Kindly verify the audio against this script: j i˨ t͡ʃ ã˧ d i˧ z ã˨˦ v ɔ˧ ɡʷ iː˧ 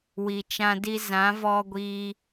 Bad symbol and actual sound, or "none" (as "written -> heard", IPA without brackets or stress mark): j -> w